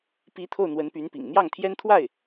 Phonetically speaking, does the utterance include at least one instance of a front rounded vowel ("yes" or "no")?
yes